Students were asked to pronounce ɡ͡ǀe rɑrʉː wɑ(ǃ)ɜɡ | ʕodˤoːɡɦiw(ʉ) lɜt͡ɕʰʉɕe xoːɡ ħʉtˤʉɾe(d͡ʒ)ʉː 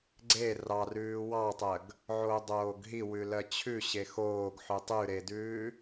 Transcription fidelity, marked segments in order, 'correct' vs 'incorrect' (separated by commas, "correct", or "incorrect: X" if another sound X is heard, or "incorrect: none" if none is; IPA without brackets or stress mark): incorrect: tˤ, correct, incorrect: d